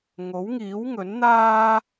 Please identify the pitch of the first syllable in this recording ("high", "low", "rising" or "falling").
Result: rising